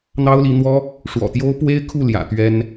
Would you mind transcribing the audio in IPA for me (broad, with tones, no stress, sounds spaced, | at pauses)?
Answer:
n̪ ɑ˥ ʊ̯ l i˧˥ n̪ w ɔ˥ | ʂ w ɔ̰˨˩ t̪ j o˥ ʊ̯ p w e˥ ɪ̯ kʰ u˥˩ l j ä̰˨˩ t̪ ɥ ɛ˥ n